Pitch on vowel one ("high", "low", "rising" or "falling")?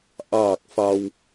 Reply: low